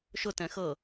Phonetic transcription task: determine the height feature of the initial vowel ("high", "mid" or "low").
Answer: high